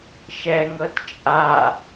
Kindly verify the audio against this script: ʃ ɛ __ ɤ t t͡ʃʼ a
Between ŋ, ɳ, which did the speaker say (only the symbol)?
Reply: ŋ